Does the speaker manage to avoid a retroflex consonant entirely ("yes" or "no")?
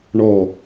no